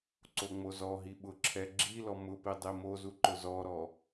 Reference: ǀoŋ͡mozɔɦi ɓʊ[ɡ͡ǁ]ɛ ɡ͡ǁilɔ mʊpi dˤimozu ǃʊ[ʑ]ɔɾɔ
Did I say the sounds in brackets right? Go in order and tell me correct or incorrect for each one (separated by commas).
incorrect, incorrect